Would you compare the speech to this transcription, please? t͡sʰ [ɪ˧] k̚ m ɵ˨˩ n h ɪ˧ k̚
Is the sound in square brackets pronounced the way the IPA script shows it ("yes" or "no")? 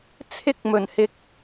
yes